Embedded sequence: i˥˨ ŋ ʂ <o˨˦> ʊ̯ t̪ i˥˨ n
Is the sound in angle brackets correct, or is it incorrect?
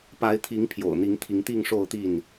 incorrect